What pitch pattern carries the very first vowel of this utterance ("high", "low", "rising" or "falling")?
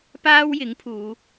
high